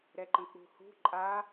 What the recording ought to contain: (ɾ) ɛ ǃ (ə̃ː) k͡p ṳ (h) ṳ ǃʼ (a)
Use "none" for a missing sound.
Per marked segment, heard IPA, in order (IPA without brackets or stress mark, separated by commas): ɾ, ə̃, h, a